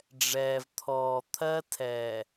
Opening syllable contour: low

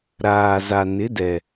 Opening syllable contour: low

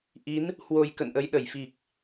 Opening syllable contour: rising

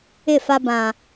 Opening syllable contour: falling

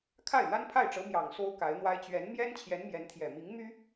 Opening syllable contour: falling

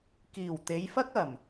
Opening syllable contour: low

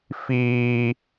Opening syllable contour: high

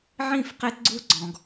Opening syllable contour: falling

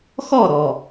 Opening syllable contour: falling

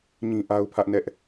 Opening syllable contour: high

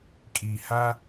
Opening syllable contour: low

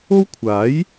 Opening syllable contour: high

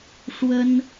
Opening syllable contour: high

